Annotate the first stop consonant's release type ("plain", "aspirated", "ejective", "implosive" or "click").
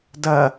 plain